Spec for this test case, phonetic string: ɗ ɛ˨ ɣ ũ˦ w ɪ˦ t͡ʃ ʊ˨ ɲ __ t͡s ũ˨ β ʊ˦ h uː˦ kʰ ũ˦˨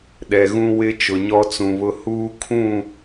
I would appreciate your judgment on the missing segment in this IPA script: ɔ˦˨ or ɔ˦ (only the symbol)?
ɔ˦